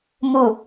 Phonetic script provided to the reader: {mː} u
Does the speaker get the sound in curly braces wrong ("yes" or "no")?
yes